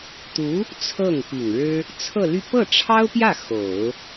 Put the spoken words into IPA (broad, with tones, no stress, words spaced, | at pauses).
t̪u˧˥ | t͡sʰɤ˥˩ŋpi˨˩ŋɻɻ̩˥ | t͡sʰɤ˥˧ly˥˧ pɤ˥˩ʈ͡ʂʰɑ˥ʊ̯pjä˥˩ xo˨˩˦ʊ̯